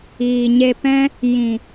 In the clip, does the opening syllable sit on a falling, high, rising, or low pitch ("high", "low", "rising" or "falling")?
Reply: low